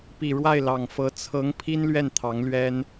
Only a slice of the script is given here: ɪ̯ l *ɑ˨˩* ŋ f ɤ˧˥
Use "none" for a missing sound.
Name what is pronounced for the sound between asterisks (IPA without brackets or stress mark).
ɑ˨˩